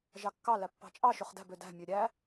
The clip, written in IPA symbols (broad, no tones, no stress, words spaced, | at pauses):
ʒɑkːɑ læpːɑ̤t͡ʃʼɑ ʃøχdæ̤b ødæ̤ mʲøɾʲæ